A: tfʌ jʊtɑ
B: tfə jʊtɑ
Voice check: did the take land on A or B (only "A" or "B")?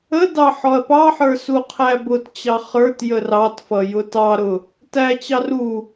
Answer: A